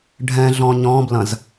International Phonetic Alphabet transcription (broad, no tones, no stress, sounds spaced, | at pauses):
ɖʱ ɛ̃ ɮ ɔ̃ ɲ ɔ̃ b l ɐ̃ z